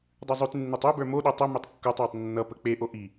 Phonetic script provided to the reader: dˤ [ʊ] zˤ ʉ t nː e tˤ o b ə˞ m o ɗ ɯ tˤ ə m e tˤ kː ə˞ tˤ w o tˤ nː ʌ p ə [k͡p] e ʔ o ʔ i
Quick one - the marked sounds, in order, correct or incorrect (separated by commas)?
incorrect, correct